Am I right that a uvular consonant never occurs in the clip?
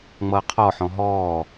no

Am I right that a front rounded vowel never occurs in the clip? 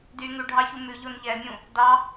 no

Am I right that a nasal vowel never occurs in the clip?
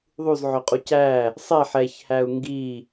yes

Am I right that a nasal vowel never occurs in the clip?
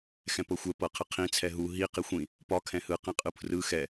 no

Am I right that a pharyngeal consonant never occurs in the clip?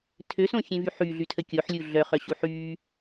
no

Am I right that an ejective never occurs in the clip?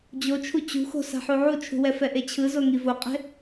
no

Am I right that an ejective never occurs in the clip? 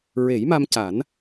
yes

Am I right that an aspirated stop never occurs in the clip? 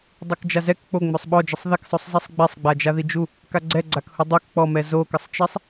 yes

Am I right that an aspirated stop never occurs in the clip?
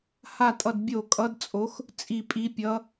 yes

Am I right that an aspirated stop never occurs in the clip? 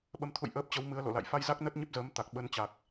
no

